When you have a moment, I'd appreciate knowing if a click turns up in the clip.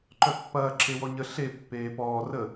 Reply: yes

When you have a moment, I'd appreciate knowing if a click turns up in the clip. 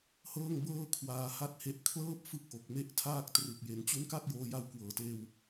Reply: no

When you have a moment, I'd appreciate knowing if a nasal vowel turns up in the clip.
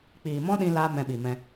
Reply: yes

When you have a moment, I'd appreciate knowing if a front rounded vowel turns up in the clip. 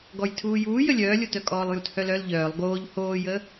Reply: yes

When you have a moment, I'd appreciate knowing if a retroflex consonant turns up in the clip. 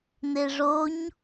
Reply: yes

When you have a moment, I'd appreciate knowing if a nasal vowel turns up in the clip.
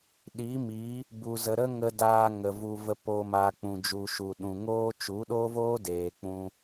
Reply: yes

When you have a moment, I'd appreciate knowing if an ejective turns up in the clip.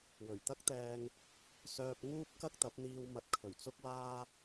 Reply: no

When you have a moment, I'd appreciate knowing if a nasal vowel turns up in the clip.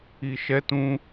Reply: yes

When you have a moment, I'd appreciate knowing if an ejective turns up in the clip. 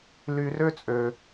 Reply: yes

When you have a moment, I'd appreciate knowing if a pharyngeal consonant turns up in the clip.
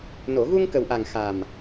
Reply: no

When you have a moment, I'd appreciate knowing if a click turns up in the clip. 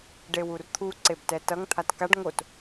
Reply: yes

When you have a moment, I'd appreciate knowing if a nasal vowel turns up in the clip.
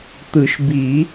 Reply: no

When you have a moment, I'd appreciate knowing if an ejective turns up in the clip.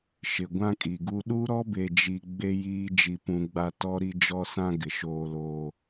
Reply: yes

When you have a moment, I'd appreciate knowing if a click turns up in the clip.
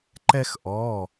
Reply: yes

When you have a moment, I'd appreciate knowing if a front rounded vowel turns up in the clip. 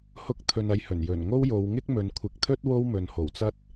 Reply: no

